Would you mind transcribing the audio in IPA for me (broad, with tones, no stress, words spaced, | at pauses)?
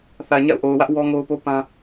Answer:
θä˨ɲa̰˦˨ʊ̯ʔo˨ʊ̯wä˦ʔ wɔ˦ŋo˦ʊ̯po˦ pã˦